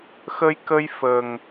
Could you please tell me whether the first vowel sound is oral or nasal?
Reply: oral